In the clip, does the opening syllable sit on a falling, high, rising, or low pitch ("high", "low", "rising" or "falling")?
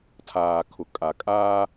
low